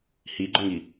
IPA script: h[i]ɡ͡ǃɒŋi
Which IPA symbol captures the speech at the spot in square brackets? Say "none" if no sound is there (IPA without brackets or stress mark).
i